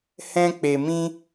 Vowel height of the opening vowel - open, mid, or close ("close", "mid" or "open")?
mid